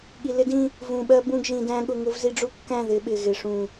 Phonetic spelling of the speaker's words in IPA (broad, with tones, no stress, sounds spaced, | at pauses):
ɠ i˨ l ɪ˦ d ĩ˦ | v ũ˨ ɓ ɜ˦ b ũ˦˨ ɡ ʒ ĩ˨ d æ̃˦ ɠ ʊ˦ ŋ ʊ˦ v z i˦ ɖ͡ʐ u˦ kː æ̃˦˨ ð ɪ˨˦ ɓ ɪ˨ ɣ ɪ˨ ʂ ũ˨